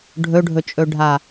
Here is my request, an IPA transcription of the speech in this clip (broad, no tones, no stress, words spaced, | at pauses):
ɖʱɵɖʱɵt͡ʃʼɵɖʱa